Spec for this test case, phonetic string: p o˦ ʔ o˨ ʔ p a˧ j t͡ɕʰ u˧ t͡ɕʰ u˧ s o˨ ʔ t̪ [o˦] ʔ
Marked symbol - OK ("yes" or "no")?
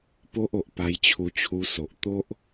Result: yes